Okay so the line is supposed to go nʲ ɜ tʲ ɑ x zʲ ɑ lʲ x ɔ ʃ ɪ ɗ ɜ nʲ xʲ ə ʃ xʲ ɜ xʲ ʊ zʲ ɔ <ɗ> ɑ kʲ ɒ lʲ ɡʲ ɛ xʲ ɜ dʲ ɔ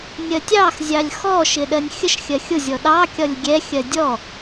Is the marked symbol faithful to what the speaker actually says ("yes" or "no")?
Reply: yes